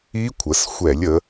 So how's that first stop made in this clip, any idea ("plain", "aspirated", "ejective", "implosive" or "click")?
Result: aspirated